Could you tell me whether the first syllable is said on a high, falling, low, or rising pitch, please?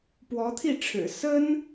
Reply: rising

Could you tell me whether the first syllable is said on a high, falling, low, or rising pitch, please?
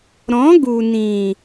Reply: rising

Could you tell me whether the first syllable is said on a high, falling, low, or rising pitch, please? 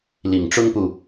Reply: low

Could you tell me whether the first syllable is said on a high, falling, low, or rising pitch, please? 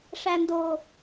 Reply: low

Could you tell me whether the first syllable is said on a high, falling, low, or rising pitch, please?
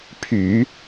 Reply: low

